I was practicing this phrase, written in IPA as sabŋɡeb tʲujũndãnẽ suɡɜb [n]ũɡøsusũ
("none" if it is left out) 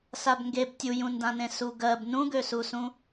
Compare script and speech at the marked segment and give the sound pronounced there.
n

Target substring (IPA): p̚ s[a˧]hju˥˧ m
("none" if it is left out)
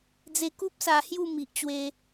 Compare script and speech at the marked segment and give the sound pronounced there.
a˧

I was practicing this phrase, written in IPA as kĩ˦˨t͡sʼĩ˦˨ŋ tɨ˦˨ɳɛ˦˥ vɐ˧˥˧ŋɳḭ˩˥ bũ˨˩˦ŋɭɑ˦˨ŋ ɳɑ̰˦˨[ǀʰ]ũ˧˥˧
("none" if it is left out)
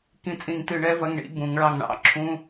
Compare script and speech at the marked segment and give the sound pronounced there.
ǁʰ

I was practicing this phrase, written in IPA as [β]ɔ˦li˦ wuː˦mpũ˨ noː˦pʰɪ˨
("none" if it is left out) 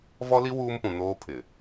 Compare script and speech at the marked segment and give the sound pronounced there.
v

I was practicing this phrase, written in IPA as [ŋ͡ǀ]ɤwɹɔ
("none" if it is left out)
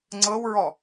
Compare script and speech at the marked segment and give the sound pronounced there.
ŋ͡ǀ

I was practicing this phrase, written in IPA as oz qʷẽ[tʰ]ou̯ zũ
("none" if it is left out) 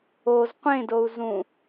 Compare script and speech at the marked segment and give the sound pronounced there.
d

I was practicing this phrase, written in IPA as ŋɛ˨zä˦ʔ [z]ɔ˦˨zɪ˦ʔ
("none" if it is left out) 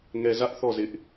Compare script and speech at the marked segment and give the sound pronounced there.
θ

